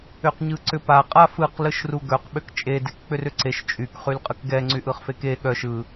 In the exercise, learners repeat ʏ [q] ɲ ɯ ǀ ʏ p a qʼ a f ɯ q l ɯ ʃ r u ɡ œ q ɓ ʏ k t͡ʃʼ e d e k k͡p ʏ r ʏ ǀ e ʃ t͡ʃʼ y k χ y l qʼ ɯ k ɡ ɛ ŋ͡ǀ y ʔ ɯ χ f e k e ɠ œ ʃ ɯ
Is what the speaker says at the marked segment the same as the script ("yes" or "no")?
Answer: yes